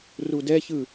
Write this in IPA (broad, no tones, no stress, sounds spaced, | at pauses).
r u d ɛ ç ɯ